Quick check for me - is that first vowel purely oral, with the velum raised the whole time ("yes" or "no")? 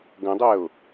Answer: no